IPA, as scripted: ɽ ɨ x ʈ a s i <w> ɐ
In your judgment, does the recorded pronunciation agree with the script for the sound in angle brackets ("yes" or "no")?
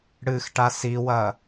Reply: yes